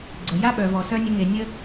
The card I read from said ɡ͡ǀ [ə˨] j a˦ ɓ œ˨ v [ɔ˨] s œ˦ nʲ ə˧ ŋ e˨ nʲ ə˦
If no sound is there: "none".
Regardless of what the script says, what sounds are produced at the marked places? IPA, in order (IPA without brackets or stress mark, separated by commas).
ə˨, ɔ˨